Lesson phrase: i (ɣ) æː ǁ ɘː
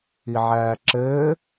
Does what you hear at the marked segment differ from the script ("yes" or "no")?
yes